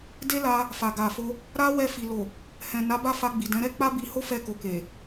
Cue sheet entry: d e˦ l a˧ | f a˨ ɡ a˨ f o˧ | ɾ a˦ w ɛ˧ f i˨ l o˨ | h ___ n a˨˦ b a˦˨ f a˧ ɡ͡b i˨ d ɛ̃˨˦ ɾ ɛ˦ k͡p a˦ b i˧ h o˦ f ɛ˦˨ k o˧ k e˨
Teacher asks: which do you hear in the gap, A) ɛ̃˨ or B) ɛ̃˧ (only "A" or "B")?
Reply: A